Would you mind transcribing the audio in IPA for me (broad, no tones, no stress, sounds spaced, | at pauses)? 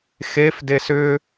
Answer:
x e f d e s ʏ